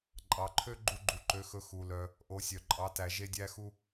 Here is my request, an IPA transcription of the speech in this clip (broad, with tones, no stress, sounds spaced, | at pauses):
ǃʼ ɑ˩˧ ǃʰ ø˥ ɡ͡ǃ u˧ ɡ͡ǃ u˩ ǃ ø˩˧ x ɵ˩˧ x u˩ l œ˩ | ʔ o˩˧ sʲ œ˩ ǃʼ ɑ˩˧ t æ˩ ʒ e˧ dʲ æ˧ x u˧